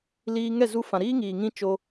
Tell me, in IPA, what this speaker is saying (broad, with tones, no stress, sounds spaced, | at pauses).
l iː˧ ŋ ɛ˦˨ z u˧ f ã˨ ɾ iː˦ ŋ iː˨ ŋ ĩ˦ t͡ʃ o˧